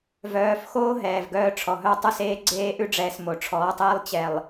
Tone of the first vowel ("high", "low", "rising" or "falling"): rising